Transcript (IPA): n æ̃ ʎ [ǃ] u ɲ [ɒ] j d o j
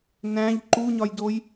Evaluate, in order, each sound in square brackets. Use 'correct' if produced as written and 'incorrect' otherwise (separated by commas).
correct, correct